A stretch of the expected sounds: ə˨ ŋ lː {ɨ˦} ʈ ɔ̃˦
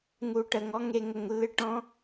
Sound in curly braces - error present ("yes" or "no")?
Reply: no